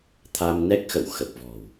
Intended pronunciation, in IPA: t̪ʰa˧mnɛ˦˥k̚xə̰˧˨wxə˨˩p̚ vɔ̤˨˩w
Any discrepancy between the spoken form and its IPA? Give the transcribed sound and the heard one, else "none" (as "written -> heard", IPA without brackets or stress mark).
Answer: none